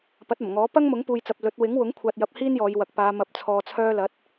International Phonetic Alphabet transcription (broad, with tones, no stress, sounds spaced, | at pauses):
p ɐ˨˥ t̚ ɐ˨˩ m ŋ ɔː˨˥ p ɐ˥ ŋ m ʊ˨˥ ŋ p uː˨ j t͡s ɐ˨ p̚ l ɵ˨˥ t̚ w ɪ˨˥ ŋ w ʊ˨˥ ŋ kʷʰ aː˧ t̚ j ɐ˧ p̚ h iː˥ n j ɔː˨˧ j w ɐ˨ k̚ p aː˨˧ m ɐ˨˥ p̚ t͡sʰ ɔː˨ t͡sʰ œː˧ l ɐ˨˥ t̚